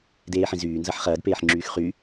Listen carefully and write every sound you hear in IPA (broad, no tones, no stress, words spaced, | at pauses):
deːħĩzyːnzɐħ χɐːdpeːħŋ͡ǁyːx χy